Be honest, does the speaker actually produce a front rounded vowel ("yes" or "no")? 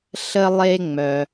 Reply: yes